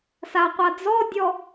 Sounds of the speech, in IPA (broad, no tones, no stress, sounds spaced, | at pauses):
s a qʷ a d͡z ɔ dʲ ɔ